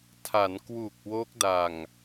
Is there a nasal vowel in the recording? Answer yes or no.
no